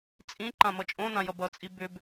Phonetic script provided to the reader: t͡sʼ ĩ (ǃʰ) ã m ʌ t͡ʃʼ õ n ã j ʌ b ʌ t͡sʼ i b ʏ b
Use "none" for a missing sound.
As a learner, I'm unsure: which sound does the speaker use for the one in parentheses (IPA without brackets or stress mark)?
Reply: ǃ